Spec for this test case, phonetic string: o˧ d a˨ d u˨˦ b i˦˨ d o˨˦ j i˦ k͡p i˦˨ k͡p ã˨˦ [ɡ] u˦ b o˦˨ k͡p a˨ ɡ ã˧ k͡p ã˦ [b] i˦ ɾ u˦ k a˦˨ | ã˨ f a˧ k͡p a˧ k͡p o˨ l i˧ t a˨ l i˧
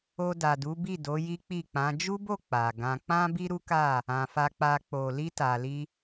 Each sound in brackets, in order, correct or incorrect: incorrect: d͡ʒ, correct

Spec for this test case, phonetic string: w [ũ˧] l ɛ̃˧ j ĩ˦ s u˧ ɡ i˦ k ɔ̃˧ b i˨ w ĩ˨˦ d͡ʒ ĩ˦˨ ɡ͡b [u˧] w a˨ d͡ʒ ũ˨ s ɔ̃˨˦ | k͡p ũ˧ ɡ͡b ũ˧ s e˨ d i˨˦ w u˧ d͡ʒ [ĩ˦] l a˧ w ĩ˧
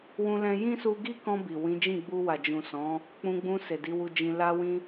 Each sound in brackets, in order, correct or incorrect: correct, correct, incorrect: ĩ˧

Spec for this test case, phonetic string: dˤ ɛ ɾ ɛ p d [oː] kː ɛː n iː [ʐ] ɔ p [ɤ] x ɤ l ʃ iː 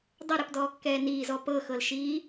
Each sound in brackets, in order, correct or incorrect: incorrect: ɔː, incorrect: z, correct

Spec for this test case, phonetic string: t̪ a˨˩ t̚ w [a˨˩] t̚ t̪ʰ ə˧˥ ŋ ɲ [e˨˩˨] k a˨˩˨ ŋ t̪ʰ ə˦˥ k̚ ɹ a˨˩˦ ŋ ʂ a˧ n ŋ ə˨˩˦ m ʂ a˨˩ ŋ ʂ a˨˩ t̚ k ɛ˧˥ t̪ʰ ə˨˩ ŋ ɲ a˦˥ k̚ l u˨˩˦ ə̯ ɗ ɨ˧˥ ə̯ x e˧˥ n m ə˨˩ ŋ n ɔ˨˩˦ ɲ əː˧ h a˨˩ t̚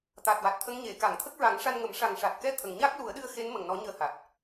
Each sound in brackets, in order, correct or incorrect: correct, correct

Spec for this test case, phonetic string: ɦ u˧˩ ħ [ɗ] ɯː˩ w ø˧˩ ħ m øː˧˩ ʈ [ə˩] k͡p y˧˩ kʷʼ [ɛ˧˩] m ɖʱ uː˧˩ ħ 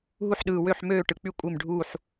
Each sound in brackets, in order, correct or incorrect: correct, incorrect: ɯ˩, incorrect: e˧˩

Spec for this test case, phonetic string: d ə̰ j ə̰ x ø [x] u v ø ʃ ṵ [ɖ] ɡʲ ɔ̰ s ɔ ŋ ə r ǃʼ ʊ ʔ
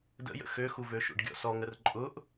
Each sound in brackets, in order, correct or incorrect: correct, correct

